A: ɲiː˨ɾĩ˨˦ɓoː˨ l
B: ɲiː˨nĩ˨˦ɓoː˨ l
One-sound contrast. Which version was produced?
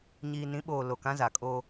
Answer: B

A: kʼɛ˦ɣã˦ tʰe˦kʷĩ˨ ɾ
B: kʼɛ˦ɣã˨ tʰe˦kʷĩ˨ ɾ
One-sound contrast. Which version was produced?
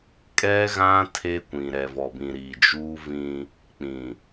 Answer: A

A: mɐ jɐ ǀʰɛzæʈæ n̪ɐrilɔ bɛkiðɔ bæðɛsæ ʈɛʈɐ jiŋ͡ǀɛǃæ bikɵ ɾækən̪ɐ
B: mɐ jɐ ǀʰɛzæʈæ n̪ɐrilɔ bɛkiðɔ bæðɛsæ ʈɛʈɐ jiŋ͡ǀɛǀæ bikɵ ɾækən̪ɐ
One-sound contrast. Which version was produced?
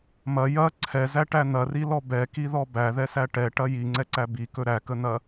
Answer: B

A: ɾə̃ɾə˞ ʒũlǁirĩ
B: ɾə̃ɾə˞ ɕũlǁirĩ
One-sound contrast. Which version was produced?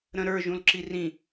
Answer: A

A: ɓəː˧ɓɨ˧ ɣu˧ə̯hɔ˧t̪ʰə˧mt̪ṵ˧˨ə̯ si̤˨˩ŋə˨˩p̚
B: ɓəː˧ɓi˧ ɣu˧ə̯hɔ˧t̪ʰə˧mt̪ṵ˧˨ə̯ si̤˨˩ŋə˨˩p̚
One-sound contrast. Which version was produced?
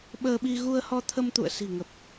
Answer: B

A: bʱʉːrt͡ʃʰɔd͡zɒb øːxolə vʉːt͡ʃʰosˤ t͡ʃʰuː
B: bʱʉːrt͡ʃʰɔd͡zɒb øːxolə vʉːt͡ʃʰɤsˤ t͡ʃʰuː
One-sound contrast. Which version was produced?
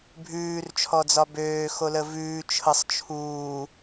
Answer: B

